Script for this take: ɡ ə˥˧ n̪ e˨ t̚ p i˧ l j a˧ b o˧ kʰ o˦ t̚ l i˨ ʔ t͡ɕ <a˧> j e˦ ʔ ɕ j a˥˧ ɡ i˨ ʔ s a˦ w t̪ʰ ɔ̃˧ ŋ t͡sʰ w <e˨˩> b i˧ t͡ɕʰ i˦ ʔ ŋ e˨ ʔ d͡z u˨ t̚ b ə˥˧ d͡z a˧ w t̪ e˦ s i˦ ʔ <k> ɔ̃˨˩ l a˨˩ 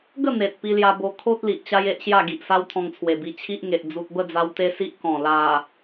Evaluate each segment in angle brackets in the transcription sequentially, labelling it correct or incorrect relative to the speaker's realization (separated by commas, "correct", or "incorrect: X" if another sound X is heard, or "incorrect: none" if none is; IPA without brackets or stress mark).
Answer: incorrect: a˦, correct, correct